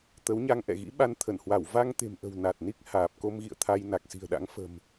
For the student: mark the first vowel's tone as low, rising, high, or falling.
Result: rising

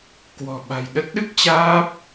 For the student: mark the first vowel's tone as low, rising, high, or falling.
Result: low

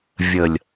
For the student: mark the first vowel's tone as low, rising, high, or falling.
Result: low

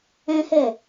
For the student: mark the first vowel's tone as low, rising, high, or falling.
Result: high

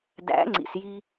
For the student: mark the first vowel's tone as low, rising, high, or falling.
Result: rising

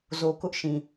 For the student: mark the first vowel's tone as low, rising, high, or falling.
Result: low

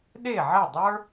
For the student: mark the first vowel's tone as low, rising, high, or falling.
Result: falling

